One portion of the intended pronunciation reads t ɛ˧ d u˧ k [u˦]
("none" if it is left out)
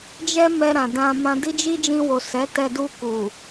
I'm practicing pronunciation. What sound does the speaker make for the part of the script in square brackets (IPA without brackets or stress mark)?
u˨